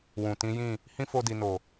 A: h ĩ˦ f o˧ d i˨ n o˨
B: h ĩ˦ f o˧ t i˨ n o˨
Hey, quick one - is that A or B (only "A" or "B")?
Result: A